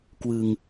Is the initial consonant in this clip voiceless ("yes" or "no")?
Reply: yes